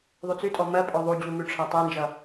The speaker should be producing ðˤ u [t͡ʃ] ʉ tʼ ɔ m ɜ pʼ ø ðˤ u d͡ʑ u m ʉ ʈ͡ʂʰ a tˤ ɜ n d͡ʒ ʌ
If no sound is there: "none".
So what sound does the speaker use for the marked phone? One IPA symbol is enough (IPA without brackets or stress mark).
t͡s